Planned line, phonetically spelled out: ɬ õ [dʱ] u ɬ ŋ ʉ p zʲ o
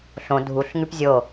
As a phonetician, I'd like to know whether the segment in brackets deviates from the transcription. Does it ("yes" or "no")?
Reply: no